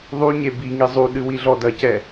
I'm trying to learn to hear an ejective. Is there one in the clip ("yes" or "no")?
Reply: no